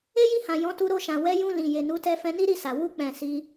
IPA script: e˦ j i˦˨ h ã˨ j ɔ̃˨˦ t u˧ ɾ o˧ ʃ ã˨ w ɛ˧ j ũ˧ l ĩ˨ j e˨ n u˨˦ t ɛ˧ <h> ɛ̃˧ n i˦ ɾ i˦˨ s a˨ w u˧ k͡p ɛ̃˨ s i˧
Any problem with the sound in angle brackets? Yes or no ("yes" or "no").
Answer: yes